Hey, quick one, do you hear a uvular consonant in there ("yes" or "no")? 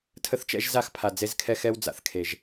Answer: no